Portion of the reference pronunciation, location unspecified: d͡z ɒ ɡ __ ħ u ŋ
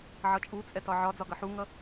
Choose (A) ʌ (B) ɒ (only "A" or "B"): A